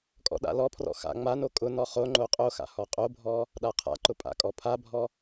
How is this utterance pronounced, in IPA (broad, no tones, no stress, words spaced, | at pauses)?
kʼɔ̰ɗa̰lɔpʰrɔ̰ xa̰ ŋ͡mano kʼʊnɔ χoŋ͡ǃo qʼoxa̰ hɔqʼobʱɔ | ɗaqʰa̰ǃʊ pʼa̰kʼɔpʰabʱɔ